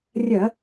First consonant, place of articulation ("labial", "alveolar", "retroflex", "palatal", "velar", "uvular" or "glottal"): alveolar